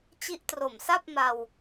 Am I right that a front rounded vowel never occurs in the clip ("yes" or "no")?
yes